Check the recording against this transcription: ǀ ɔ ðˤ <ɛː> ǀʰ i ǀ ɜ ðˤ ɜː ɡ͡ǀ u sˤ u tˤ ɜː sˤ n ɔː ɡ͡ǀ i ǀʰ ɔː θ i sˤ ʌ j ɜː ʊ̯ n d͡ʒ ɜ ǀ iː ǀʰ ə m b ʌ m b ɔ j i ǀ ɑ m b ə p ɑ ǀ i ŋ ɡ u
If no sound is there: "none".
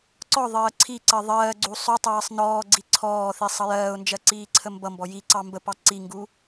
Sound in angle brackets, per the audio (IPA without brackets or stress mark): ɜː